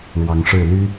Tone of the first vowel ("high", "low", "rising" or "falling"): rising